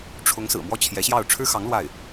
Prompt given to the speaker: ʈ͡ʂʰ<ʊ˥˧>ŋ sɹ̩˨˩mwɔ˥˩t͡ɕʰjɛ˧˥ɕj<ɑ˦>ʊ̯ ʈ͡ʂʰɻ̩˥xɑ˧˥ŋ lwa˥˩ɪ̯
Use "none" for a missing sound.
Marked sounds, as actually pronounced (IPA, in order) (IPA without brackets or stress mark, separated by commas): ʊ˧˥, ɑ˥˩